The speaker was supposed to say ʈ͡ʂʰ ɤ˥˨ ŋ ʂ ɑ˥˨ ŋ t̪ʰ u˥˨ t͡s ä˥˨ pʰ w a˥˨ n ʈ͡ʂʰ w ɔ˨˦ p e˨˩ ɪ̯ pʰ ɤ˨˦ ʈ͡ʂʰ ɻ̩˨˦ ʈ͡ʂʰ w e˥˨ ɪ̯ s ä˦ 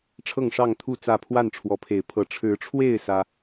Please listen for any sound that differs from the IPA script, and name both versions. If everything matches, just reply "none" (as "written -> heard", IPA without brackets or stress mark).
p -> pʰ